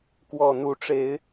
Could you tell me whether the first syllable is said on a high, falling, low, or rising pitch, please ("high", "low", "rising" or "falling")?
low